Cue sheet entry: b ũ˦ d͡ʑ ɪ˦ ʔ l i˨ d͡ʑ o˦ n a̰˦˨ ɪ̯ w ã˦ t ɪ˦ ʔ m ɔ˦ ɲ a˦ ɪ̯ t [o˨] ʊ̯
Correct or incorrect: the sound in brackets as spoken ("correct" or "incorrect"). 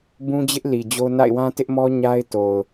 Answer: correct